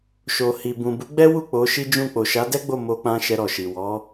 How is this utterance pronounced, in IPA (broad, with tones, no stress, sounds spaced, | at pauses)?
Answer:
ʃ o˨ h i˨ b ũ˨ b u˨˦ ɡ͡b ɛ˦ w u˦˨ k͡p o˨˦ ʃ i˦ d͡ʒ ũ˦˨ k͡p o˨ ʃ a˨˦ d ɛ˦ ɡ͡b o˦˨ m o˧ k͡p ã˧ ʃ ɛ˧ ɾ ɔ˨ ʃ i˨ w ɔ˨˦